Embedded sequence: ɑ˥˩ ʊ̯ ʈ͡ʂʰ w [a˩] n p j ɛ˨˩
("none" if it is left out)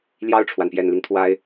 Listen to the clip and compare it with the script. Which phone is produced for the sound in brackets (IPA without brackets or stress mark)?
a˩